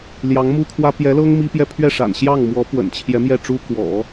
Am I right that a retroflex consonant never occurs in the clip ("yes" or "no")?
no